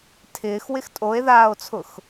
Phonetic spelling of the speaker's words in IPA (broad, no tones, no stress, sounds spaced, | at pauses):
tʰ ɪː x w ɪ x tʼ o e̯ ð aː o̯ t͡sʰ ʊ x